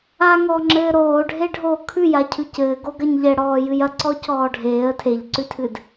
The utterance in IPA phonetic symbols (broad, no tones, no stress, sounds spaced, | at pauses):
a ŋ ɔː ŋ͡ǁ ɘː ɾ oː ɖʱ e ɖʱ oː kʰ ʉ j a cʰ ʉ c ɘː ɡ o ɡ ɐ ɲ ʎ ɛ ɽ ɔː j ɨ j ɐ ǀ ɔ c ɔː ɖʱ eː ə̯ tʰ e ʎ ǀ ʉ tʰ ɨ d